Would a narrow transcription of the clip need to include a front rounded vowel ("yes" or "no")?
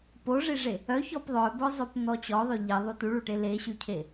yes